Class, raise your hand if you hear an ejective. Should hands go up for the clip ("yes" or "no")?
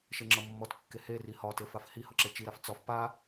no